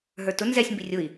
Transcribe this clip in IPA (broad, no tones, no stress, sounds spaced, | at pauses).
ɦ ə˞ t ʊ n z ɛ sʲ m b i rʲ ʊ i̯